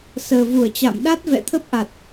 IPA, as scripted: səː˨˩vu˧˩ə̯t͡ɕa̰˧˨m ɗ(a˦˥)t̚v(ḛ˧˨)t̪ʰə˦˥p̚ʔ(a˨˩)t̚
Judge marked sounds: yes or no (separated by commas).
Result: yes, no, yes